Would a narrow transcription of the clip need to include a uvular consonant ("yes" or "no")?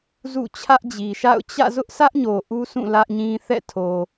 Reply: no